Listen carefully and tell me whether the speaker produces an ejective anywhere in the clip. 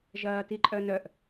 yes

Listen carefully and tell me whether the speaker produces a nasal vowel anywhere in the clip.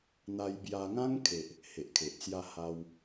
yes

